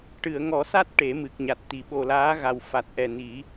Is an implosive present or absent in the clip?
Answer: present